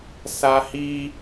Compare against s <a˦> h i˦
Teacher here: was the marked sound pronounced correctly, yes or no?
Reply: yes